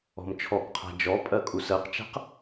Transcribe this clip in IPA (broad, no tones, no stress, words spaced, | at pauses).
ɔ̤mt͡ʃʰɔkqʰa̤ d͡ʒɔ pʼɜkʼusɜqt͡ʃa̤q